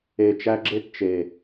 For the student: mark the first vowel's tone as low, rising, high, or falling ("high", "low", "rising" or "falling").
low